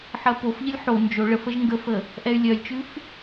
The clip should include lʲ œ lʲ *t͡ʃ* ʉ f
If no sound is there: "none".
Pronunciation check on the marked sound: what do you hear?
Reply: t͡ʃ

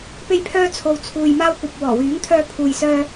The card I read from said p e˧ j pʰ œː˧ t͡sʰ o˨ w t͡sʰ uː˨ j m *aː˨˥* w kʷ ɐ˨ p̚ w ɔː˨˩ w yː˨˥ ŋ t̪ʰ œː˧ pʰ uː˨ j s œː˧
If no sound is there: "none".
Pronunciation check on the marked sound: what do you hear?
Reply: aː˧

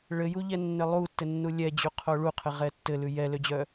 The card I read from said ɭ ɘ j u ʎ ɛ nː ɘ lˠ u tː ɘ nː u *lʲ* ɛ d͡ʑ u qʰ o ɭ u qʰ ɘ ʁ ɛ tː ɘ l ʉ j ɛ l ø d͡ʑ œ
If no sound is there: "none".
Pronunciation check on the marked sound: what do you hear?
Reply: lʲ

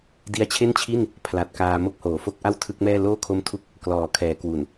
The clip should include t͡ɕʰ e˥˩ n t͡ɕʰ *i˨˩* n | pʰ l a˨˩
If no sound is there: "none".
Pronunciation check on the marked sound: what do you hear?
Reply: i˥˩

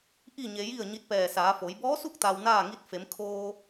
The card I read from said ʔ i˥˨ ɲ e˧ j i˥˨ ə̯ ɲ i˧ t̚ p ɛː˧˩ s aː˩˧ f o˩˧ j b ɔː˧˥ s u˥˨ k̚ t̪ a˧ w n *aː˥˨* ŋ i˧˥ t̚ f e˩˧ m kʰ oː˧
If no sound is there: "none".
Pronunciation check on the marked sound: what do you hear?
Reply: aː˥˨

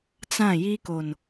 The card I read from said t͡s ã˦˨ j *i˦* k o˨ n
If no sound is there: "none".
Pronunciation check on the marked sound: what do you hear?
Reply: i˦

